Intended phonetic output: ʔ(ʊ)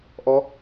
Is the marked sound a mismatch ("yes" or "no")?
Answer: yes